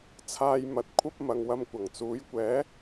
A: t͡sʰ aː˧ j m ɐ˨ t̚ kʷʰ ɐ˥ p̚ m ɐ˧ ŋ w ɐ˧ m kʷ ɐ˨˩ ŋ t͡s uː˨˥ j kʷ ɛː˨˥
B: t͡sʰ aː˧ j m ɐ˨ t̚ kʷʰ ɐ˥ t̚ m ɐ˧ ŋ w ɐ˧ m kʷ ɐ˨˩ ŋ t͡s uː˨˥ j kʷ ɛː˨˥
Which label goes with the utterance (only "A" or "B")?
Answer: A